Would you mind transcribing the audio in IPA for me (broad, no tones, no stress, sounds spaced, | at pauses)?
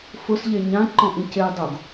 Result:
f ʊ s ʎ e ɲ ã ǃ ɔ̃ ʔ ĩ c e dˤ o ɡ